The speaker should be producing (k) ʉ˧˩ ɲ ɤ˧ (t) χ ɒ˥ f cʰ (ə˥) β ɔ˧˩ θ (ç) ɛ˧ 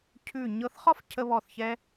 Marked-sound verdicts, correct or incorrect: incorrect: cʰ, incorrect: θ, incorrect: ə˧, correct

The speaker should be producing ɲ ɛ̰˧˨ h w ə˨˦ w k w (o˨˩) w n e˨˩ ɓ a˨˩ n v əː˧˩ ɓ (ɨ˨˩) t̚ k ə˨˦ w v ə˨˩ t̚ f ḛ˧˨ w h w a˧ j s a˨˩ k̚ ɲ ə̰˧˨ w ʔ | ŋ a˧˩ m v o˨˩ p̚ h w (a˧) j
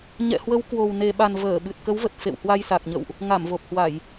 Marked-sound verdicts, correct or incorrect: correct, correct, incorrect: a˧˩˨

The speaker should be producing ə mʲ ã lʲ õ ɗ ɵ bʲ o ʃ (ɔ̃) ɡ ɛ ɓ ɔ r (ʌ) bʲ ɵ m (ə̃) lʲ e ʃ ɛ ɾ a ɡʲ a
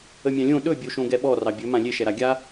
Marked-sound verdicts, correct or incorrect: incorrect: õ, incorrect: ɑ, incorrect: ã

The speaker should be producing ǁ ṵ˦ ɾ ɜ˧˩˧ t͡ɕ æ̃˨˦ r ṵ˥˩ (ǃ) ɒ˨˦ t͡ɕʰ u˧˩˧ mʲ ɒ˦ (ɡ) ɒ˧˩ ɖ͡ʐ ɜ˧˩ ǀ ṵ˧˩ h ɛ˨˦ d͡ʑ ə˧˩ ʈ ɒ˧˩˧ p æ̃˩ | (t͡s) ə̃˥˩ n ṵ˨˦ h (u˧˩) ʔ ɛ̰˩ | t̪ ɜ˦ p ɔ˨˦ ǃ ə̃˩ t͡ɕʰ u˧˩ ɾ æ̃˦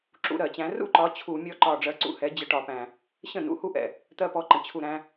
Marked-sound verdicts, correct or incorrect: correct, incorrect: ǃ, incorrect: ɕ, incorrect: u˦

